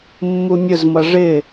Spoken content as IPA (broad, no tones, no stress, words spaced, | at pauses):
mːumʲʊzmʌ ʐɪ